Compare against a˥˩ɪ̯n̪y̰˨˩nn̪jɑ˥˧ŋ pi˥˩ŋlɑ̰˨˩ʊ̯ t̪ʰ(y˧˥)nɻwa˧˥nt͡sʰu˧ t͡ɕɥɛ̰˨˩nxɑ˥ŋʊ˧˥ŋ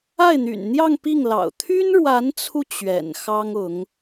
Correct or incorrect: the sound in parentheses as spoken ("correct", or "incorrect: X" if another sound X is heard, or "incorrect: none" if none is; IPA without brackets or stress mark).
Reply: incorrect: y˥